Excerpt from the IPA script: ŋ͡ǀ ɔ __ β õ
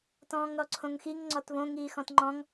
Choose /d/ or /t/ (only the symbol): t